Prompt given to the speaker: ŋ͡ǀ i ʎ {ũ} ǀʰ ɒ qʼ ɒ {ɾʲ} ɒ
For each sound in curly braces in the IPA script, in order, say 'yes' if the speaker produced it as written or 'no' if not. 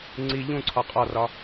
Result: yes, no

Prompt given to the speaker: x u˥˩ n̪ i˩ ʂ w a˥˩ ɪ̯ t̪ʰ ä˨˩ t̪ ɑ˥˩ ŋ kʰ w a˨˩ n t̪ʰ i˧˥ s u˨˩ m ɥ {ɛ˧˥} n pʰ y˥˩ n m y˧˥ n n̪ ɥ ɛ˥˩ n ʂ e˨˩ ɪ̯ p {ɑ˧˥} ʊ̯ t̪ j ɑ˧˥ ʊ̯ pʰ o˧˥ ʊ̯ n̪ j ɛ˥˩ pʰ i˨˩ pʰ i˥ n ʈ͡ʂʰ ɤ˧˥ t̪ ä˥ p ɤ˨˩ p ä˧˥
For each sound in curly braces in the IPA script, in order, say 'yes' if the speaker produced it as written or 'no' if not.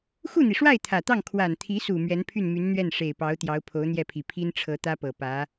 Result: yes, yes

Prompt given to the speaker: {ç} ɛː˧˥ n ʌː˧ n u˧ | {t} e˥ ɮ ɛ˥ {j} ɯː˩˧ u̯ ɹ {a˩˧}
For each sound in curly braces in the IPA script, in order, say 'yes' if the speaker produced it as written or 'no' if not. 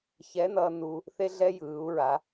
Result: yes, no, yes, yes

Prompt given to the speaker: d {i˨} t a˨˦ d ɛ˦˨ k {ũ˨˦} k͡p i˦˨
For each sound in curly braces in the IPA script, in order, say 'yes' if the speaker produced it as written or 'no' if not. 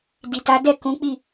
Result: yes, yes

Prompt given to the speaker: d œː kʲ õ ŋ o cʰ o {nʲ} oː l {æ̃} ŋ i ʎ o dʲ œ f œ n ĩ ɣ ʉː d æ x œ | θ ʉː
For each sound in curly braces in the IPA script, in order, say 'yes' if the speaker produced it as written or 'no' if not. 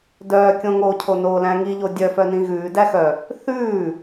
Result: no, yes

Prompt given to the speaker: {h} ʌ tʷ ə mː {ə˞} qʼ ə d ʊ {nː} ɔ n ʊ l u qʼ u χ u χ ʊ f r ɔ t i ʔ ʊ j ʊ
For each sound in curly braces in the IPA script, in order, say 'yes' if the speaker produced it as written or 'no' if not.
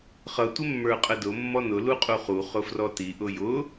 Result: no, yes, no

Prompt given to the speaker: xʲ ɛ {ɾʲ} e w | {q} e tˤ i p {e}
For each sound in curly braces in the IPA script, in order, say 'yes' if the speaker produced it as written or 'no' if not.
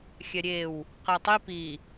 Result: yes, yes, no

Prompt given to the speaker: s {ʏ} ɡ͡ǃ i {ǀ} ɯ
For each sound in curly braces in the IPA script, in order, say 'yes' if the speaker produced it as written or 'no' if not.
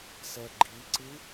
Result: no, yes

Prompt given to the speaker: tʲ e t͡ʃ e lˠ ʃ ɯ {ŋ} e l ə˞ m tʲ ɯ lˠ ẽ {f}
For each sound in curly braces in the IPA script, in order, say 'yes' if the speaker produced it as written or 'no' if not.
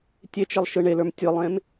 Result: no, no

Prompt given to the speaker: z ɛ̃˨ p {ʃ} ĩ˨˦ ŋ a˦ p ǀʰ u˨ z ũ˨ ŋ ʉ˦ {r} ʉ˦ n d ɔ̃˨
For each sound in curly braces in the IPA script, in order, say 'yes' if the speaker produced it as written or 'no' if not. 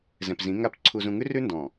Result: no, yes

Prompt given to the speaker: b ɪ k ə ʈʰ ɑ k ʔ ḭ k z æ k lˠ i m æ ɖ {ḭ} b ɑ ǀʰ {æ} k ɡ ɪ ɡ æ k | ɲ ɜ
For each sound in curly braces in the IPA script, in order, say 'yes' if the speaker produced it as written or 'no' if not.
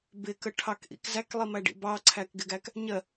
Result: yes, yes

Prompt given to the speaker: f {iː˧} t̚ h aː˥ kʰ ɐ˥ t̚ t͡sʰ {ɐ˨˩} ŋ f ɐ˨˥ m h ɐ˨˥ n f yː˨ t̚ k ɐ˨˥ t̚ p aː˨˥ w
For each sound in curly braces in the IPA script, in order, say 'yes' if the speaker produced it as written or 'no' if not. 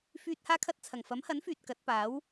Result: no, yes

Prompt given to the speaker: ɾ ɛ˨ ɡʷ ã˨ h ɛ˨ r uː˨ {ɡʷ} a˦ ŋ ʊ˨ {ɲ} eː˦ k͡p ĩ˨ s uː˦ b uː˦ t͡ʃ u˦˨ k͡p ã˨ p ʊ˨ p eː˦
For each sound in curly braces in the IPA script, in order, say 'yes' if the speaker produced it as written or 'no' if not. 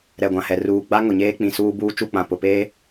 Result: no, yes

